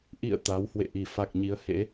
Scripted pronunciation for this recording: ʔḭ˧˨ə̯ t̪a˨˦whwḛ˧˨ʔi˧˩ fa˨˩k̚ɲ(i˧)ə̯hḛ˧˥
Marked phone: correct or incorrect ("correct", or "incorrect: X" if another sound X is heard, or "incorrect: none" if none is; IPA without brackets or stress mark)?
incorrect: i˨˦